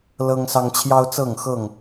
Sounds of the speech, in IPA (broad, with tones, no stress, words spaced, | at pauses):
lɤ˦ŋsɑ˦ŋ t͡ɕʰjɑ˦ʊ̯t͡sɤ˥˨ŋxɤ˥˨ŋ